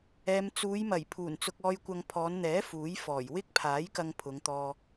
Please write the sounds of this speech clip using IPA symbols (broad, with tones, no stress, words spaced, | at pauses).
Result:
ɛː˨mt͡suː˨˧jmɐ˨˩j pʰuː˨˩n t͡sʊ˧k̚ɔː˧jkʷɐ˧ŋ pʰɔː˨˧nn̪ɛː˨˥ fuː˨˥jfɔː˨˩j wɪ˥k̚pʰaː˨˥j kɐ˧ŋ pʰʊ˨˧ŋt̪ɔː˧